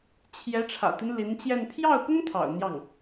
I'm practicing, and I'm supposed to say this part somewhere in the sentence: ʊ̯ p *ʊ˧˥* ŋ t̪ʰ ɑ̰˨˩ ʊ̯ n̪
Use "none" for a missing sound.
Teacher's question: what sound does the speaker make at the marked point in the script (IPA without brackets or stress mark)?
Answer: ʊ˥